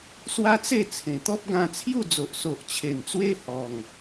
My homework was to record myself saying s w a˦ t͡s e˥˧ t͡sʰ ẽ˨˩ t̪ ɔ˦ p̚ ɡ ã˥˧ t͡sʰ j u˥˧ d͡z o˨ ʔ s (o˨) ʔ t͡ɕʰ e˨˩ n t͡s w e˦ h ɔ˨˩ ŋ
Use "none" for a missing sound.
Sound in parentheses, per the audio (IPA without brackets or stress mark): o˨